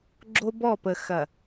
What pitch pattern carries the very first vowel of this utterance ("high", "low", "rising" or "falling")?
high